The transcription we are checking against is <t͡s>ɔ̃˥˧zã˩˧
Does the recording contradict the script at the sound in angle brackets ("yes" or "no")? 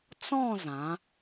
no